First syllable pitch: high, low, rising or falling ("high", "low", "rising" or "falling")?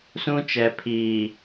high